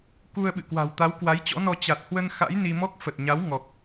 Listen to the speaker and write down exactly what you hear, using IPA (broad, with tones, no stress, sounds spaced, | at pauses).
k u˧ ə̯ ɓ ɨ̰˧˨ k w a̤˨˩ w t̪ a˨˦ w k w a˨˦ j t͡ɕ ɔ̰˧˥ n ɔ˧ t͡ɕ a˨˩ t̚ h w ə˧ n x a̰˧˥ j n i˧ m ɔ˦˥ k̚ f ə˨˩ t̚ ɲ a˨˦ w ŋ ɔ˨˩ k̚